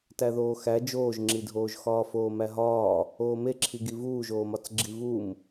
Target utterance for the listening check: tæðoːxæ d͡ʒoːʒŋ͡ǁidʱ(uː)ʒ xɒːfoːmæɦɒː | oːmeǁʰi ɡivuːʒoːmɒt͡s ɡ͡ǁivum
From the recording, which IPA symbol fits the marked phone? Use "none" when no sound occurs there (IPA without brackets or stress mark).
oː